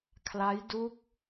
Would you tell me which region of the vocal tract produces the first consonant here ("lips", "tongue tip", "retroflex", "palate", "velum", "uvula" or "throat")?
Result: velum